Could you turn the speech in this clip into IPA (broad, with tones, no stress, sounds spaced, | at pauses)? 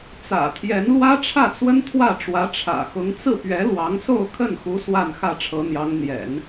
t͡s ä̰˨˩ t̪ʰ j ɛ˧˥ n l w ä˥ ʈ͡ʂʰ ä˥˩ t͡s w ə˥ n t̪ʰ w ä˥˩ ʈ͡ʂ w ä˧˥ ʈ͡ʂʰ ä̰˨˩ x ʊ˧˥ ŋ t͡s ɹ̩˥˩ p ɥ ɛ˧˥ l w ɑ˧˥ ŋ s o˥˧ ʊ̯ kʰ ə˥˩ n x u˧˥ s w a˥˧ n x ä˥˩ ʈ͡ʂʰ ɤ˧˥ n̪ j ɑ˧˥ ŋ n̪ j ɛ̰˨˩˦ n